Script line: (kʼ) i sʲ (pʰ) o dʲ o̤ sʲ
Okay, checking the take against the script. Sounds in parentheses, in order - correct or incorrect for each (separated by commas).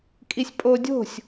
correct, incorrect